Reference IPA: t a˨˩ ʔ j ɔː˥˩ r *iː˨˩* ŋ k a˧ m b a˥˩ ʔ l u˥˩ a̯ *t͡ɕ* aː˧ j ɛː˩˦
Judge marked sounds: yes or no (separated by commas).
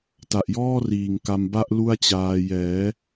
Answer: yes, yes